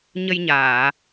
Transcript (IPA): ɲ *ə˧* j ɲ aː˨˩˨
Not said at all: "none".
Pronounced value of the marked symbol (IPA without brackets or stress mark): ə˧